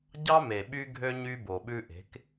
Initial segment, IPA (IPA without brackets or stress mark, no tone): ɟ